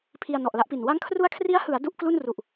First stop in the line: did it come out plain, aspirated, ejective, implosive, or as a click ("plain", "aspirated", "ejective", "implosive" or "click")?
aspirated